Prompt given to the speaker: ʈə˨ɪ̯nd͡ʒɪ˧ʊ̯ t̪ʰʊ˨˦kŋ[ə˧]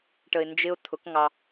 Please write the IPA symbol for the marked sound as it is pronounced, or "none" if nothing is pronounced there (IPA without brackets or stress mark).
ɑ˧